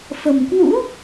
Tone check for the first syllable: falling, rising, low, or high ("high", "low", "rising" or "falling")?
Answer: low